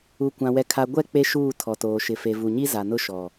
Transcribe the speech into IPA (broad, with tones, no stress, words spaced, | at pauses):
u˨kʷã˨ wɛ˨kʰa˨ɡʷɛ˦˨ k͡pe˦ʃuː˦˨ tʰɔ˨toː˨ʃɪ˨ fe˨vu˨ɲi˦ za˨nʊ˦ ʃɔ˨